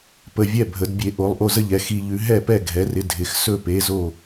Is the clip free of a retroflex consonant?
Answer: yes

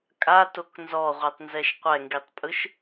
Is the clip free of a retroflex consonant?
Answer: yes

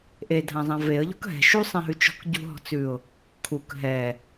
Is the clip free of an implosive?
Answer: yes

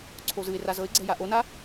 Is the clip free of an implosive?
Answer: yes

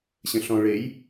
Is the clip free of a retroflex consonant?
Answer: no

